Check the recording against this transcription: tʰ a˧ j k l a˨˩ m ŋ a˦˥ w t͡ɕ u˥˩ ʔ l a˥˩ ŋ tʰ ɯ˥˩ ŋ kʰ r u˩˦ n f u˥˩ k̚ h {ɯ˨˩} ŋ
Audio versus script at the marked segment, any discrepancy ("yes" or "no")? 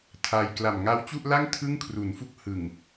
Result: no